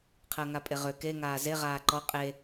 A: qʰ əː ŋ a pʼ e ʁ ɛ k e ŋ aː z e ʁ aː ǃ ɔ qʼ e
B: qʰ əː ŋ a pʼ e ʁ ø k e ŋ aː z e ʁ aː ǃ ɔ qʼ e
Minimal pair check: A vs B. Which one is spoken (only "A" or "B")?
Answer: B